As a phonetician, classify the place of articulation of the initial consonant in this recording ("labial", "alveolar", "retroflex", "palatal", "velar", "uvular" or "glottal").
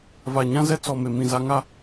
labial